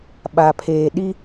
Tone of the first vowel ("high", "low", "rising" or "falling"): low